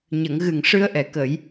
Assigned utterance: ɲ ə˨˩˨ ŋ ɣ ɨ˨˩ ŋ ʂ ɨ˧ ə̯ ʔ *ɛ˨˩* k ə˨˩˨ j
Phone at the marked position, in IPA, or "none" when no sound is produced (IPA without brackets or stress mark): ɛ˨˩